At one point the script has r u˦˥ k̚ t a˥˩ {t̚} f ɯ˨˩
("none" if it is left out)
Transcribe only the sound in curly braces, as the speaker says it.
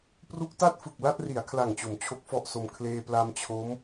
t̚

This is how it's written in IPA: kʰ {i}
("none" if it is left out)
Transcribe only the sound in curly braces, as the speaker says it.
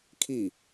i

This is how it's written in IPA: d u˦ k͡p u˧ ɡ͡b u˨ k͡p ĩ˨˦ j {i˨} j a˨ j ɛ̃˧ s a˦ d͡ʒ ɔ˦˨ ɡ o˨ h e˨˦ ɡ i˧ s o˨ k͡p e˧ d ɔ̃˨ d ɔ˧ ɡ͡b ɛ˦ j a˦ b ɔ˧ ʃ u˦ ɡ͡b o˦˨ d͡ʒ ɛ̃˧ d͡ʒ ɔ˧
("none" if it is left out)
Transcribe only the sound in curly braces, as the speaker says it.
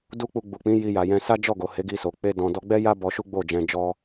i˧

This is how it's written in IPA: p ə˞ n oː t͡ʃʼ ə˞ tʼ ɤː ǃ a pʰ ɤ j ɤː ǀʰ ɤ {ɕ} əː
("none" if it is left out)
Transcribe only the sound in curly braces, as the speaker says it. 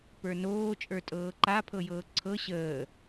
ɕ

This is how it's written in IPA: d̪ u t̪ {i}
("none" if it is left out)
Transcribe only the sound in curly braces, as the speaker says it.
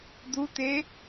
e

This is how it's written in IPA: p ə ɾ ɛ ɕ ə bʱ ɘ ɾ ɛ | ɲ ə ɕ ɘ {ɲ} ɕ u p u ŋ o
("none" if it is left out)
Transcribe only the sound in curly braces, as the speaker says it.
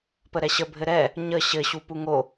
none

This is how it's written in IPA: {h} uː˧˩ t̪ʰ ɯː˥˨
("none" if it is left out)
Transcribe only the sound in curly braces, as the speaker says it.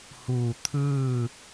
h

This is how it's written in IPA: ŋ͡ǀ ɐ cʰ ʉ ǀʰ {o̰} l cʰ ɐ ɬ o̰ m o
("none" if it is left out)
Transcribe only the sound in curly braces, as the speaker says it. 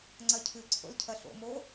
o̰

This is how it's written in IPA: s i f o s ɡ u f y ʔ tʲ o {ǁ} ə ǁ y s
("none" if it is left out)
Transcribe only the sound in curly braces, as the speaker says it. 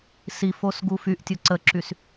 ǀ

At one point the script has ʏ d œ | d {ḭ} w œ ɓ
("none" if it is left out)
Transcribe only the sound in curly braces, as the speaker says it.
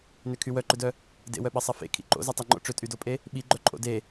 ḛ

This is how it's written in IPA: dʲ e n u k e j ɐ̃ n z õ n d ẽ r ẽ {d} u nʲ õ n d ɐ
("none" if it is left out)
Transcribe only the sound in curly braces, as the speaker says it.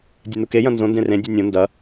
dʲ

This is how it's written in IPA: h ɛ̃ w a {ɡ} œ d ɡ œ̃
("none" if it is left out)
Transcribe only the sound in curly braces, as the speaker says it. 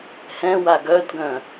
ɡ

